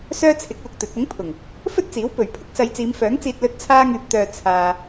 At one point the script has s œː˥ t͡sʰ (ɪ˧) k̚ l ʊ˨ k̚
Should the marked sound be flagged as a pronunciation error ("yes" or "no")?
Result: yes